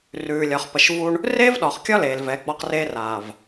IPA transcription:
r ʉː˨ lʲ ɒ˨ χ p ə˨ ʃ v u˦ ɳ | r eː˦ v ɗ ɒː˨ χ kʲ ɒ˦ l eː˨ l v ɛ˨˦ ɡ͡b ɒ˦ q r eː˦ r aː˨ v

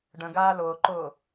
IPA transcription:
ɖ ə̃ ɡ aː l ʊː ǃ ʊː

